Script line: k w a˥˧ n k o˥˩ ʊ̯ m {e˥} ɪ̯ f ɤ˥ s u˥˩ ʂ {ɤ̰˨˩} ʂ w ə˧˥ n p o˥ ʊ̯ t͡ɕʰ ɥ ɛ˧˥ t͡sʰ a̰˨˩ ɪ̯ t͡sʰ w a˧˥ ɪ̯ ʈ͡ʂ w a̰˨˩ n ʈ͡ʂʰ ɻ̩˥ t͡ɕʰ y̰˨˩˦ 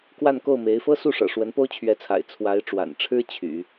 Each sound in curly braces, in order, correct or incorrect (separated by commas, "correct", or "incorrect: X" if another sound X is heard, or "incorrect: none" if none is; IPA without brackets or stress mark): incorrect: e˧˥, correct